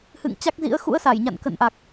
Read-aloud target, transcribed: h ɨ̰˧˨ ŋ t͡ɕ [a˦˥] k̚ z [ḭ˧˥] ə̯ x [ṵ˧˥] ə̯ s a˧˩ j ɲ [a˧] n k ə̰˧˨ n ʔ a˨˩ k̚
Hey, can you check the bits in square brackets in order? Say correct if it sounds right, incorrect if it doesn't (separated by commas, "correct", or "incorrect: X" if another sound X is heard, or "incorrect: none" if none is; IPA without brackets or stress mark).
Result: correct, correct, correct, incorrect: a̰˧˨